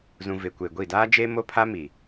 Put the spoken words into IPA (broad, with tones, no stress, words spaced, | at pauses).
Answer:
zũ˨ vɪ˨kʷe˨ɡʷi˦˨ daː˦d͡ʒe˦ mo˦pʰa˦mi˨